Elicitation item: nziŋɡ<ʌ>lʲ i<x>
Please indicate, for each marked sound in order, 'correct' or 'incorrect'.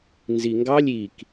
incorrect: ɑ, incorrect: k

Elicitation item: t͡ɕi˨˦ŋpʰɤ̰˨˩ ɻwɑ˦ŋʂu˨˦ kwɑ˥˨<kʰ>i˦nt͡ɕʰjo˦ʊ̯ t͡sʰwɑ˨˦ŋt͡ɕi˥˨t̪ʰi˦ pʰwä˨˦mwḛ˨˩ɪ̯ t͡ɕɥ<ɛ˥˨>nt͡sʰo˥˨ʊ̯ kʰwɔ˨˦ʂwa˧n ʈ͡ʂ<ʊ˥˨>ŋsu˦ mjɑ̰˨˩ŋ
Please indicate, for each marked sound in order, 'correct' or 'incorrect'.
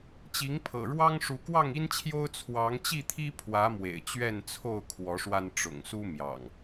incorrect: ŋ, correct, incorrect: ʊ̰˨˩

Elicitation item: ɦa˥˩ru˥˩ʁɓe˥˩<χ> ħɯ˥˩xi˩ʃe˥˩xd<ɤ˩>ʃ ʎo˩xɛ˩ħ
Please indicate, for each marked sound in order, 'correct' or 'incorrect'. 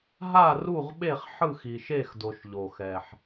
correct, incorrect: o˩

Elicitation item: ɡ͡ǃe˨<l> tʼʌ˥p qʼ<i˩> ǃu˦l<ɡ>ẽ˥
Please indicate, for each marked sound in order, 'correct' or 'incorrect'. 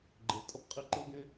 correct, incorrect: i˦, correct

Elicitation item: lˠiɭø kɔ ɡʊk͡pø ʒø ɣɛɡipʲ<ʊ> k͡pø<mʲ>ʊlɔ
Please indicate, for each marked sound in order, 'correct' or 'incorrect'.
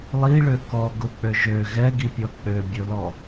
incorrect: ɔ, incorrect: bʲ

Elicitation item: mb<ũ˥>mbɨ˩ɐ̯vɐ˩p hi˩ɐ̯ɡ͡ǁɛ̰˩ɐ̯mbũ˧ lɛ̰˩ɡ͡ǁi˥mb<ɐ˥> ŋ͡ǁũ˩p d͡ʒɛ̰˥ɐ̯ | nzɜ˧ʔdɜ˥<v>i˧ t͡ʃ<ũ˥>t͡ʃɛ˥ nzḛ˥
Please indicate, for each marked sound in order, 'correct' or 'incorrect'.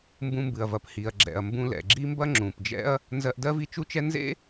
incorrect: ũ˧, correct, correct, incorrect: u˥

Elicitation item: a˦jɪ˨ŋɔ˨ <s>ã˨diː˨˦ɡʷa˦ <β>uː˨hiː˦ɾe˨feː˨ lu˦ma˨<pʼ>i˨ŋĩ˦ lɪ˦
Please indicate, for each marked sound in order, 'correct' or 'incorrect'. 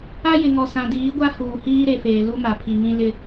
correct, incorrect: h, incorrect: pʰ

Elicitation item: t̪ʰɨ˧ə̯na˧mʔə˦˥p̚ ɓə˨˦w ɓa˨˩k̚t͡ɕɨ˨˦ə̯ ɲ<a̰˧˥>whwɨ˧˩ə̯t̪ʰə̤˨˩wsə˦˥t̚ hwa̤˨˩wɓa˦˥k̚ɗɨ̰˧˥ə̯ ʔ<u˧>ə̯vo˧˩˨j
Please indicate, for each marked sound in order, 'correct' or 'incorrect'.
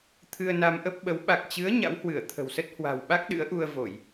correct, correct

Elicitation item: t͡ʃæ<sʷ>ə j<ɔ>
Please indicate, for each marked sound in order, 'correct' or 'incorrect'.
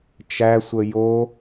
correct, incorrect: o

